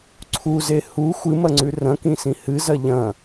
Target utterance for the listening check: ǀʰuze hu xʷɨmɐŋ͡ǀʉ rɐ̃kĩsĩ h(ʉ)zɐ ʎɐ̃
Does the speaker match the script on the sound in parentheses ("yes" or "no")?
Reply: no